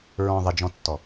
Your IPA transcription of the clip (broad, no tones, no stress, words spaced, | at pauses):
ɹɔ̃ ðˤɪd͡ʒɔ̃tːɔ